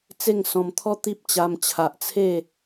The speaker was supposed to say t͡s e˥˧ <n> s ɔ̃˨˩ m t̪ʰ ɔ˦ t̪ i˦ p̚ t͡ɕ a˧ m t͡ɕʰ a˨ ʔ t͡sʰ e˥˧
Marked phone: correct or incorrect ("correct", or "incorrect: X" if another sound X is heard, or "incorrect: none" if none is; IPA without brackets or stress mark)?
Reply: incorrect: ŋ